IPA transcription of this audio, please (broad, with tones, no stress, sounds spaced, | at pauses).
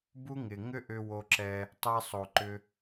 b u˦ ŋ ɪ˨ ŋ ʏ˦ ʔ ʏ˧ w o˧ ǁ ɛ˧ | tˤ ɛ˧ sˤ o˨ ǃ ʏ˧